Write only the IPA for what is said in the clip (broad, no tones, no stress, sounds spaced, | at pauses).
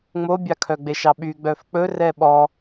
ŋ͡m o bʲ ɑ kʰ œ ɡ͡b e ʃ ɑ ɓ y ɡ͡b œ f k͡p ɵ r ɛ ɓ ɔ